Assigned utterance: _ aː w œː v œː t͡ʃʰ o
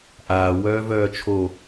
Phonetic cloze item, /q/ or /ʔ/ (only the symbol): ʔ